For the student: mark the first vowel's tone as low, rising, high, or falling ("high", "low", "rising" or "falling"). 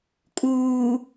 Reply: low